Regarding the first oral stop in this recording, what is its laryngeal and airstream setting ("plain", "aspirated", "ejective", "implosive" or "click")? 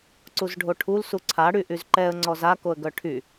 click